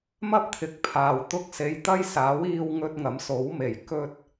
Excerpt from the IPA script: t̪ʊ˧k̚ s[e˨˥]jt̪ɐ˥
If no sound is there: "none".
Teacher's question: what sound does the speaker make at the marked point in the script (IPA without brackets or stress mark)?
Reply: e˨˧